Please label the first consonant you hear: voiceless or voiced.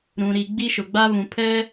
voiced